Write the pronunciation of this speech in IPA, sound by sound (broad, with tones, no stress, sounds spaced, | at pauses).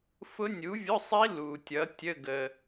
f ʊ˦˥ nʲ u˨˥ vʲ ʊ˧˥˧ sˤ i˦˥ l u˨ tʲ ʌ˨˥ tʲ ə˧˥˧ ɡ ə˨